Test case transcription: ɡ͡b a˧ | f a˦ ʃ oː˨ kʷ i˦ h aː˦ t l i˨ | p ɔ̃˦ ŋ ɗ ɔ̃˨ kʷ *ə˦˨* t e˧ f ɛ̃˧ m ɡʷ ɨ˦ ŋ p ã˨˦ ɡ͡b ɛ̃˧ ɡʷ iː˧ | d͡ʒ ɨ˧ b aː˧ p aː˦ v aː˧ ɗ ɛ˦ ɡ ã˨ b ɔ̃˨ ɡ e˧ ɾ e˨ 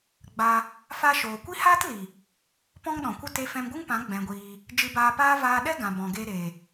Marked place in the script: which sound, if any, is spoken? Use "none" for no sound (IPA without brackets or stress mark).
ə˦